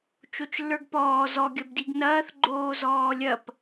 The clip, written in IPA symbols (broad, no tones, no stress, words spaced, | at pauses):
t͡ʃot͡ʃlːə˞ɡpɔː zɔ ɡʲɐbdiɡnɐːθ ɡ͡ǃoːzɔːlʲɐp